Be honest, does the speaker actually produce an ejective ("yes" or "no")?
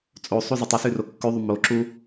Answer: yes